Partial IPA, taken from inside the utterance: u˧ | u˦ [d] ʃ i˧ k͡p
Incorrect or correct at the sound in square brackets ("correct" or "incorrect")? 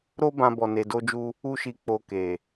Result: incorrect